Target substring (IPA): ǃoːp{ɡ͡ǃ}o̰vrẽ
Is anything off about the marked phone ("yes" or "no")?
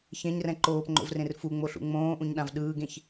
yes